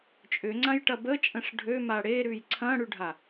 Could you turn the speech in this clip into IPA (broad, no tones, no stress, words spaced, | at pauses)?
t͡ʃʼʏŋ͡ǀãjʈɐ bət͡ʃʼə̃ʂ ɖʱøma ɽeɾʉj ǀʰɐ̃ɽʉɖʱa